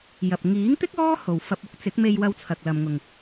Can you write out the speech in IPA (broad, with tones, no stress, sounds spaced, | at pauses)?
j ɐ˨ p̚ ŋ iː˨˥ ŋ t̪ ɪ˥ k̚ ɔː˥ h o˨ w f ɐ˧ p̚ ʊ˥ k̚ t͡s ɪ˨˥ k̚ m e˧ j w ɐ˧ w t͡sʰ ɐ˨ k̚ l ɐ˨ m ŋ ʊ˨ ŋ